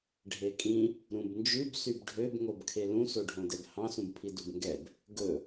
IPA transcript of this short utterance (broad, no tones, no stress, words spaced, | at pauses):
ɖʱekʼĩ | ɾũbnd͡ʒʉb sybɖʱøb ŋobkʰelũ soɖʱõdɛbhɑ̃ sũbpʰidubŋɡɛb | ɡɵ